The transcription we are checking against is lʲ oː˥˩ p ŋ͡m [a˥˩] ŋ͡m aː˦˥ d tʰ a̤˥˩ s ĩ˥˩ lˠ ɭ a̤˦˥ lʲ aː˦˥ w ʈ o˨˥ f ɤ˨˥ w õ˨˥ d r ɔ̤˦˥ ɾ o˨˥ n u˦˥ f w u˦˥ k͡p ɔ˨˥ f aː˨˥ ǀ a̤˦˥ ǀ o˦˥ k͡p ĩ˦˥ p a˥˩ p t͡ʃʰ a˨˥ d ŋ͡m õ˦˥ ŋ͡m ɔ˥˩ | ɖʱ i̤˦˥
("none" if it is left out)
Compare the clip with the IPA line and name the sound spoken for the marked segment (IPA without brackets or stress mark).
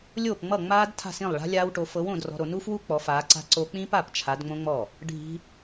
ʌ˥˩